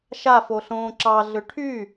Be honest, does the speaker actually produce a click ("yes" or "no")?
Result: yes